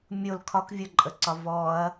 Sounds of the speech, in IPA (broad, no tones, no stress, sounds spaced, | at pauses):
mʲ o l kʰ ɒ k vʲ o ǃʼ ə ǀ ɒ v ɔ ɐ̯